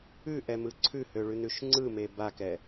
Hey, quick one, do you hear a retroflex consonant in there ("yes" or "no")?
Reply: yes